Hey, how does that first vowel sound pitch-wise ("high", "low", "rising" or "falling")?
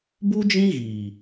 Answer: high